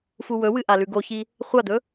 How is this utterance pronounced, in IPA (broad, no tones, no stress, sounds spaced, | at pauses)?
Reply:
f u w ɵ w ɨ ʔ a l ʉ ɡ o ç i | χʷ a d̪ ɵ